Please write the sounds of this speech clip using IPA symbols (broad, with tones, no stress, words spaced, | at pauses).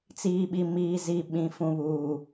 t͡siː˨ɓi˨ miː˨zi˨ ɓĩ˨ fũ˨βuː˨